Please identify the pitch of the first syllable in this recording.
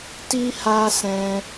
high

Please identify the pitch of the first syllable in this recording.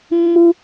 high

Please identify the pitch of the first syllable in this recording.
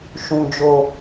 low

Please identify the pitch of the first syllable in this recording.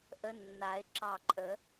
rising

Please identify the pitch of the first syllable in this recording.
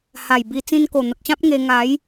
low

